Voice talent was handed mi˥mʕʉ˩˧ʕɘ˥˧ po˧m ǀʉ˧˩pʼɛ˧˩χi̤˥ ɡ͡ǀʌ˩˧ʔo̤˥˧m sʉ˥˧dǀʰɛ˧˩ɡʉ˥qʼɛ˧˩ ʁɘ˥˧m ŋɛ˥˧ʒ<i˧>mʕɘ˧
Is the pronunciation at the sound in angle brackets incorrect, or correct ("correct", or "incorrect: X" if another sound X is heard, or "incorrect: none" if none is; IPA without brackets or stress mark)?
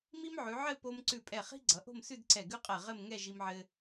correct